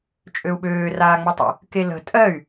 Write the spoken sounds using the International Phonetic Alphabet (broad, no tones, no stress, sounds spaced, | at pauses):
t͡ʃʼ ø u̯ ɓ øː r aː ŋ͡m ɵ tˤ ə̰ | k e l ə̤ tʼ ɜ y̯